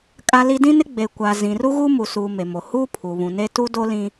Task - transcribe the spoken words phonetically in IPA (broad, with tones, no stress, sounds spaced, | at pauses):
kʼ a˦ l i˦ d ĩ˦ n ɪ˦ ɡ͡b e˨ kʷ a˨ z ĩ˨ r u˦ ɣ u˦ m u˨ s uː˨ m e˨ m o˨ h uː˦ pʰ u˨ β ũ˨ n e˦ t u˦ d o˦ l ĩ˦